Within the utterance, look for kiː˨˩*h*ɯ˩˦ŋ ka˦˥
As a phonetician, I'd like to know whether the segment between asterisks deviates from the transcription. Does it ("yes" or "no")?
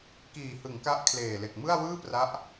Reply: no